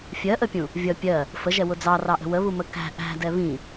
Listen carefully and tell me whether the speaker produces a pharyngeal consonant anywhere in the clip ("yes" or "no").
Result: no